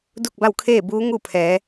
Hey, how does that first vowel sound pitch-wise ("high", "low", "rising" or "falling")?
falling